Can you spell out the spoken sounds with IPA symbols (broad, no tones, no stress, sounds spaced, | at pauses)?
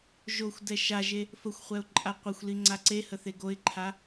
ʒ o xʷ d ɛ ʃ a ʒ e | f ə xʷ χʷ ɛ ʊ̯ ǃʼ a qʷ ə xʷ l i ŋ͡ǀ a ǀ e h ə θ e ɡ o ɪ̯ ǃʰ a